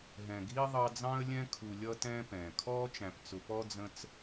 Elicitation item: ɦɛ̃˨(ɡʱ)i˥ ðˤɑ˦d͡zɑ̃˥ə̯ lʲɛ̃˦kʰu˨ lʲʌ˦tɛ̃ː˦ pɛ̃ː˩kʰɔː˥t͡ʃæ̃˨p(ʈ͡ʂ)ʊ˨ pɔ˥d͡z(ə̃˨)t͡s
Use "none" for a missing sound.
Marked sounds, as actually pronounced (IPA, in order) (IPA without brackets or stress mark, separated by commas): ɡʱ, t͡s, ə̃˦